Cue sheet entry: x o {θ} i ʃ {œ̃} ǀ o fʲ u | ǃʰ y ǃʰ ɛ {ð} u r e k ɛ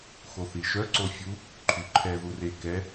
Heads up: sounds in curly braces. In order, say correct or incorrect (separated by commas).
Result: correct, incorrect, correct